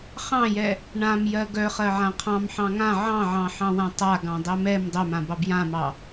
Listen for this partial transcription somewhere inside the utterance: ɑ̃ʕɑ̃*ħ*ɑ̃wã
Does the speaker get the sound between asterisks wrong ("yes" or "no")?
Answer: no